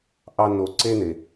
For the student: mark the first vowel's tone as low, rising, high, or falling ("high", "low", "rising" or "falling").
high